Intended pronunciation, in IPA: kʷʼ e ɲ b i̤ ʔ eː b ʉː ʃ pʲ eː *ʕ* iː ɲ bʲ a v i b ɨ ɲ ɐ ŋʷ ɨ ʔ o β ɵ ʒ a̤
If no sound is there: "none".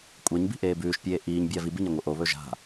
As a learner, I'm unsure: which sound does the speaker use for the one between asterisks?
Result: ʔ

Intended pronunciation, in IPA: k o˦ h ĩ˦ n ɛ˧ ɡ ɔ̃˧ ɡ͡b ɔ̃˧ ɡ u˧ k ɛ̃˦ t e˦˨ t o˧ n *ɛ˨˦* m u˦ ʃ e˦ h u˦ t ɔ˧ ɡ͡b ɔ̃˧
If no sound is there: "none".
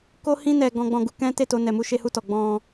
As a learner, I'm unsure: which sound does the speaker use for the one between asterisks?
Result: ɛ˧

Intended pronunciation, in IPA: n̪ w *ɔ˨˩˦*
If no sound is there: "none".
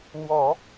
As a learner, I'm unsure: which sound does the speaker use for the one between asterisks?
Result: ɔ˨˩˦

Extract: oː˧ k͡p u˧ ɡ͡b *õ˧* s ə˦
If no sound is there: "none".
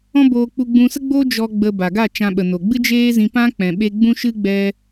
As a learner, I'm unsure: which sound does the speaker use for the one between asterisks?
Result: ũ˧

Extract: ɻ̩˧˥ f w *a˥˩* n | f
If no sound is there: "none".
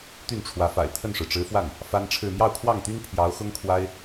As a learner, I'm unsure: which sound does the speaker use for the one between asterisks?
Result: a˥˩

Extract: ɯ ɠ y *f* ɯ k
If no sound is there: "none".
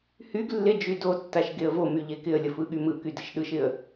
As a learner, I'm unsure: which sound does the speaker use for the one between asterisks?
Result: m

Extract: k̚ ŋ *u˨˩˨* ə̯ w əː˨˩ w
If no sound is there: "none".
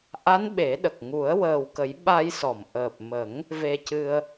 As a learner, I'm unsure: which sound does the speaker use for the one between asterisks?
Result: u˨˩˦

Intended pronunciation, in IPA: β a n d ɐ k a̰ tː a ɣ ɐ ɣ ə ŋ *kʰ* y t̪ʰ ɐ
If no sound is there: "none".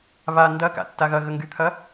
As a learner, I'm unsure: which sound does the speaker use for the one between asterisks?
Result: ɡ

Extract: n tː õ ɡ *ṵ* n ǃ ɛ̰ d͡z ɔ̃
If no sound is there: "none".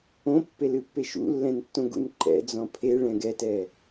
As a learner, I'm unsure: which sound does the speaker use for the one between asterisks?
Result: ṵ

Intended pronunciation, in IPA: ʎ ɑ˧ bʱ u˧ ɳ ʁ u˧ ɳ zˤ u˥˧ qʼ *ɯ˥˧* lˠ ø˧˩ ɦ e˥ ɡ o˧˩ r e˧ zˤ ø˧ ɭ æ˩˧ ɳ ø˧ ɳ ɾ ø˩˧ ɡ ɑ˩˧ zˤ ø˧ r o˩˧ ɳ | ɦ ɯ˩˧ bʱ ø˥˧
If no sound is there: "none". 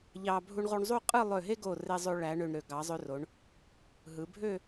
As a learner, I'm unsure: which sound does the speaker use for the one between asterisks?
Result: ɯ˥˧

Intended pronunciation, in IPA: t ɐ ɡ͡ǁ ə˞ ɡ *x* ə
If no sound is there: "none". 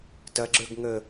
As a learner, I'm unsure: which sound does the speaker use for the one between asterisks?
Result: ŋ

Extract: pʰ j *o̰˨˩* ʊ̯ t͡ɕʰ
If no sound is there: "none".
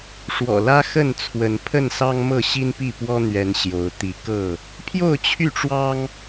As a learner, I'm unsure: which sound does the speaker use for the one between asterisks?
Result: o˥˨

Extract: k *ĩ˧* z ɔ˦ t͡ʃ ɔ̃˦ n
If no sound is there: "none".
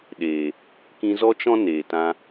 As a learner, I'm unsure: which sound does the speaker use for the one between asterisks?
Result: ĩ˧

